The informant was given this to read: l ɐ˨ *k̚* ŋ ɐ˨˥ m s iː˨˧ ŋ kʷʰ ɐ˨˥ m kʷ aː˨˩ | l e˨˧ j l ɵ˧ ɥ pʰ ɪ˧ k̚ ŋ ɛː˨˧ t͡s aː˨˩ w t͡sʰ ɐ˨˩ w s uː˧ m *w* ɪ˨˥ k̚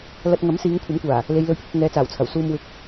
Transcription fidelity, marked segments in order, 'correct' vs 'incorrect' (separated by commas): incorrect, correct